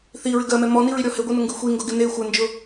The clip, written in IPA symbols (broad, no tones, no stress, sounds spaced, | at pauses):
θ i ɹ ɪ ɡ ɜ m ɛ m ɔ n i ɹ i ɾʲ ɔ h ɪ ɡʷ i n ʊ ŋ ɡ ɨ xʷ i ŋ ɡ ʊ ɡ ɪ n e xʷ ɜ n d͡ʒ ʊ